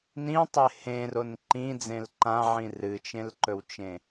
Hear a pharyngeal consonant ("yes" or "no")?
yes